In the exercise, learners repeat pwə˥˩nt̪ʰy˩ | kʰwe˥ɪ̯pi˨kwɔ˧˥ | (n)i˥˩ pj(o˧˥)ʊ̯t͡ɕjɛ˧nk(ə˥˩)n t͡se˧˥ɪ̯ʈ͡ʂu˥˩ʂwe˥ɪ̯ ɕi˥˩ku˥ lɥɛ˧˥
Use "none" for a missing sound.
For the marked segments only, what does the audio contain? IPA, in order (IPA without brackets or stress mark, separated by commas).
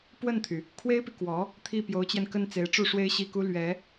t̪ʰ, o˧˥, ə˥˩